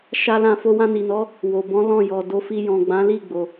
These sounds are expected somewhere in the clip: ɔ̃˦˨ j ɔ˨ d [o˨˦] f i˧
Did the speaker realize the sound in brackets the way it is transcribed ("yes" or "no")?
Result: yes